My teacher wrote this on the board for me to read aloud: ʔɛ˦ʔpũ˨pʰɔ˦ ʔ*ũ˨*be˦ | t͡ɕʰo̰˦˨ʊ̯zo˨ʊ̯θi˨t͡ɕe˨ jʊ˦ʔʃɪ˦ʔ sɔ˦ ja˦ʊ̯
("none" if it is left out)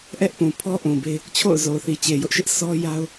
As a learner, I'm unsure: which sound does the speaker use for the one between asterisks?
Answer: ũ˨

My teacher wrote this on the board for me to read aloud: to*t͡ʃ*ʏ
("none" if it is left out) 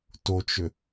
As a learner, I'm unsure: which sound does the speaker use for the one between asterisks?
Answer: t͡ʃ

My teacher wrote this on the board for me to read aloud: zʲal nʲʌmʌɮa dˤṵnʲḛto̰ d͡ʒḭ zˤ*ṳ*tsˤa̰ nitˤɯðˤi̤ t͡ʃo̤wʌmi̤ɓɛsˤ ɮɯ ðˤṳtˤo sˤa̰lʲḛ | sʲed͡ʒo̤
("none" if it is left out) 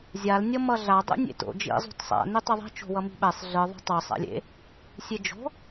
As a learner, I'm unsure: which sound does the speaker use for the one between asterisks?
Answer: ṳ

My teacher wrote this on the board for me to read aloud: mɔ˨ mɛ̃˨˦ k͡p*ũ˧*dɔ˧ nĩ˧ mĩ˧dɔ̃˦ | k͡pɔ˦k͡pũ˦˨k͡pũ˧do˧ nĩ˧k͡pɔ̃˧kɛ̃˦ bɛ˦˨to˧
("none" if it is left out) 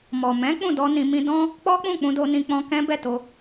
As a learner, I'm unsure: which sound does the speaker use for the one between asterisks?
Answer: ũ˦˨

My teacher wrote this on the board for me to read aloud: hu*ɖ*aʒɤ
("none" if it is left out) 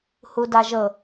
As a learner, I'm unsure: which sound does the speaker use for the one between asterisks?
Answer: d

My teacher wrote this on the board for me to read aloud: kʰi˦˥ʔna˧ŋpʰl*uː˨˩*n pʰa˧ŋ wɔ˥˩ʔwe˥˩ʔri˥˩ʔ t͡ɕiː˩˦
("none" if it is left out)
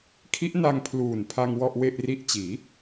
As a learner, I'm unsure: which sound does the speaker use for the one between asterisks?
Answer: uː˨˩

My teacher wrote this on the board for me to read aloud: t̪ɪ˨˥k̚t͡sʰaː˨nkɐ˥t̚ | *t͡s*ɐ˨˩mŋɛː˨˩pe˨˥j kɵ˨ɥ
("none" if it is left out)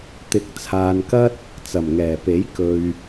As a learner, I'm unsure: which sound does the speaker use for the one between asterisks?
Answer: t͡s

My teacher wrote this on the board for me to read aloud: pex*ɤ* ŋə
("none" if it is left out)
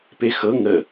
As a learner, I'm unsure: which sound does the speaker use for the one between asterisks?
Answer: ɤ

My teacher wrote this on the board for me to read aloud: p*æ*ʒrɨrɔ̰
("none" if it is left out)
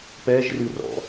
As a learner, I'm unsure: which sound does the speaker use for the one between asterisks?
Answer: ɛ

